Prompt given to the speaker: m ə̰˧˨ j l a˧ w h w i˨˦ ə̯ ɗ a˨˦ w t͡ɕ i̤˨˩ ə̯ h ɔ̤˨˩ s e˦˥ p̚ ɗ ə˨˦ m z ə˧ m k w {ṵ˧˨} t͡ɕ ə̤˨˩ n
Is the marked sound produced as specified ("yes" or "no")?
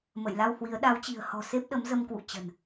yes